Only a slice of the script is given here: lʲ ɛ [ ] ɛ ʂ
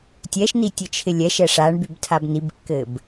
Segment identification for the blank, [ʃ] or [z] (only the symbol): ʃ